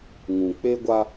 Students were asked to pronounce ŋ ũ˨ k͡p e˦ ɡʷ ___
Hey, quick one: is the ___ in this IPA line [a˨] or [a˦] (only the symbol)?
a˦